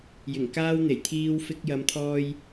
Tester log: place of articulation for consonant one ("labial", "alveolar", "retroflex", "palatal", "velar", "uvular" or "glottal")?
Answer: palatal